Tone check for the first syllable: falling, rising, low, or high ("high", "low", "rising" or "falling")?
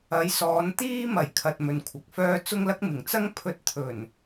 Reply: rising